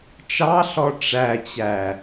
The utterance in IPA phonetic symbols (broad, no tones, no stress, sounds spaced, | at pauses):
t͡ʃ ɑ ɬ ɔ ʈ͡ʂ æ t͡ɕ æ